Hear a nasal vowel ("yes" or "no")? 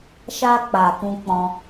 yes